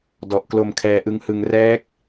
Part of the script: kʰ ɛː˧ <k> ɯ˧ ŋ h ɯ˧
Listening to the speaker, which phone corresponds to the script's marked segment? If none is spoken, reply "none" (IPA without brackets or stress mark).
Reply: ʔ